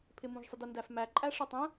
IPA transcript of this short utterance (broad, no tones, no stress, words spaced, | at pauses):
pʰɪmũʒsˤɪdə ndæfmæ ǃʼæʂə˞tˤə̃